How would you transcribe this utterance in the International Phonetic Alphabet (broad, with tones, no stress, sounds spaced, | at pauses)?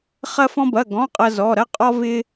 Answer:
χ ɐ˥ f ɔ̃˥ b ɐ˧˥˧ ɡ ɔ̃˧˥˧ qʼ ɐ˥ z ɔ˧˥˧ ɾ ɐ˥ qʼ ɔ˥ v ɪ˥